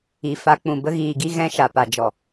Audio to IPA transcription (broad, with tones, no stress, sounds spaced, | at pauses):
i˨ f a˧ k͡p ũ˨ b ə˧ ɣ iː˨ ɡ i˧ ɣ ɛ̃˧ ʃ a˨ p a˨ d͡ʒ ɔ˨